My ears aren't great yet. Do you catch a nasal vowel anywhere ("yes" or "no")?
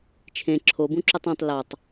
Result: yes